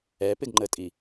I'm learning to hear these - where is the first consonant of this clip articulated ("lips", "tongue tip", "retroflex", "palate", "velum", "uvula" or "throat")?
lips